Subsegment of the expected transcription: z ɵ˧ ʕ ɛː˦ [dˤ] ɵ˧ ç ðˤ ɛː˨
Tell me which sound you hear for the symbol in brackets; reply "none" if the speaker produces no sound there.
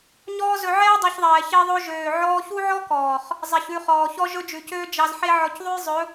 dˤ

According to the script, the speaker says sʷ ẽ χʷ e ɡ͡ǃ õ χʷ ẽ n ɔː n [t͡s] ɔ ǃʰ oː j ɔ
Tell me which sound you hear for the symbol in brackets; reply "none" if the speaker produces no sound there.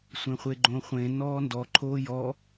d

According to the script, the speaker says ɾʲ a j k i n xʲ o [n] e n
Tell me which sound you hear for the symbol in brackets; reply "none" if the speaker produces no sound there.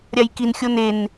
n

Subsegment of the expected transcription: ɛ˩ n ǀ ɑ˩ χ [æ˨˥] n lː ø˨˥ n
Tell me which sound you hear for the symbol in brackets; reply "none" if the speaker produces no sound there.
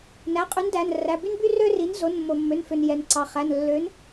æ˩˧˩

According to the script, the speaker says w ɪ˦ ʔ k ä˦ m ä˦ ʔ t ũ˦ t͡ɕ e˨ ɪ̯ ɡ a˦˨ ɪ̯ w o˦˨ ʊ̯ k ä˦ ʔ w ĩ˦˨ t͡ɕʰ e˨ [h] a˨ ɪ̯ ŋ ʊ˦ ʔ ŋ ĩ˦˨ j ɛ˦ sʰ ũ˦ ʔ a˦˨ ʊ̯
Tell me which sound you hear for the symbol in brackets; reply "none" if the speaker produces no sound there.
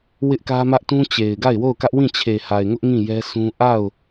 h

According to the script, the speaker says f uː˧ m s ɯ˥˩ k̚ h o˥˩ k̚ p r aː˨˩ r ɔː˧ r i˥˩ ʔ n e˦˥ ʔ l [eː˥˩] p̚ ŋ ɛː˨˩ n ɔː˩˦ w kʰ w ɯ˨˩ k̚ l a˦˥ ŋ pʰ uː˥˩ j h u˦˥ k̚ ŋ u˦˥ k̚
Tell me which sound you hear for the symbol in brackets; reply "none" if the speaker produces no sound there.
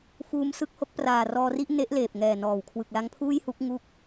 eː˨˩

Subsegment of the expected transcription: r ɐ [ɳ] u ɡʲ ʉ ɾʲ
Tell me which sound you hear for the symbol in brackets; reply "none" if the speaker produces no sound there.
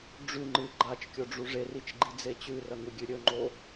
ŋ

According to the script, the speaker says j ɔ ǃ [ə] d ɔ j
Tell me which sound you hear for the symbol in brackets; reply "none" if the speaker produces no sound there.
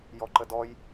ə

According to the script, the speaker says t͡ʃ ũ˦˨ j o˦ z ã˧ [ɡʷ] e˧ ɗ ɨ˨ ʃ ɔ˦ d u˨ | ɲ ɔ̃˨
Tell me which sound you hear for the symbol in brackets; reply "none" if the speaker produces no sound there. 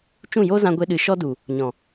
ɡʷ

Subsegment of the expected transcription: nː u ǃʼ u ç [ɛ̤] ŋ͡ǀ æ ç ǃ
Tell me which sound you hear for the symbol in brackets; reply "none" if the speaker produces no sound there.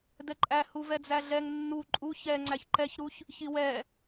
ɛ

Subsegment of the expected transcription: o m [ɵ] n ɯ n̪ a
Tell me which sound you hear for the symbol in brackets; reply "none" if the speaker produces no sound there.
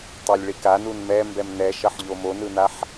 o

